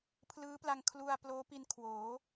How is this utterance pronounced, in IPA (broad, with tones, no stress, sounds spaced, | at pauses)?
pʰ l ɯː˦˥ p l a˧ ŋ kʰ l u˧ a̯ p l oː˦˥ p i˧ n kʰ w oː˩˦